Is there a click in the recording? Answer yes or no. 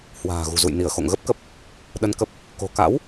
no